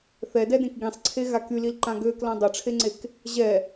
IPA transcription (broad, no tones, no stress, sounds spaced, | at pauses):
θ ɛ d ɛ d ẽ k ɡ ĩ sˤ ǀʰ e ɣ a k y l i l ǃ ã ɡ ø k l ã dˤ ø ʈ͡ʂʰ e ŋ͡ǀ e k | ʑ ɛ